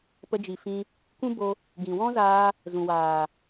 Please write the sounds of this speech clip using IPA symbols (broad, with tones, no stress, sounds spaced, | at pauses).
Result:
p ə˧ d͡ʒ i˨ f ĩ˧ | kʷ ũ˦ b o˧ | ɡ ĩ˨ w ɔ̃˦ z aː˧ | z ũ˨ w aː˨